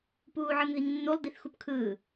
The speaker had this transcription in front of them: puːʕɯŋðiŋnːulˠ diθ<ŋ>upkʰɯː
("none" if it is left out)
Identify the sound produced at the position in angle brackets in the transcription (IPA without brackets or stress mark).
x